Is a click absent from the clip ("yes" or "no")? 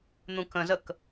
yes